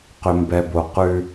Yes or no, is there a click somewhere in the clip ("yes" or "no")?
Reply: no